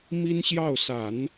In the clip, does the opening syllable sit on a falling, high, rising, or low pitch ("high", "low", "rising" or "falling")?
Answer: high